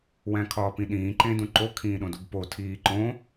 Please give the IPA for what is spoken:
wæ̃kʰɒːpĩɗĩː ǃẽdũǃo kʰĩːɗõdubpo tʰiːǃõ

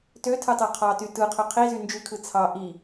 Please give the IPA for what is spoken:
tøtʰɯtˤø qʰɑty tɯqʰø qʰizy nd͡ʒykʰɯ t͡sʰɑ ʔi

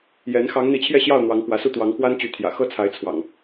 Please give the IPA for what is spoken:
jɛ˨˦n xɑ˨˦ŋn̪i˨˦t͡ɕʰjɛ˥˨ɕjɑ˥˨ʊ̯ n̪wɑ˨˦ŋkwä˨˦su˥˨ t̪wɑ˨˦ŋkwa˦nt͡ɕy˨˦t̪ʰjä̰˨˩ xɤ˥˨t͡sʰa˨˦ɪ̯ t͡sʰwɑ̰˨˩ŋ

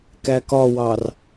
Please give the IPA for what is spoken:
kækɒwɑr

